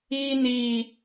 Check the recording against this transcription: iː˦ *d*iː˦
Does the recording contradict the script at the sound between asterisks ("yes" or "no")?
yes